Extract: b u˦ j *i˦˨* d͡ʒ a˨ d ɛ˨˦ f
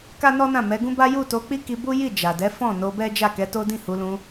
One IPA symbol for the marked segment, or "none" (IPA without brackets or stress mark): i˦˨